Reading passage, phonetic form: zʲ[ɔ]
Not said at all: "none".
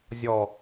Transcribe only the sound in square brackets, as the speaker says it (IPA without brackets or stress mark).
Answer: ɔ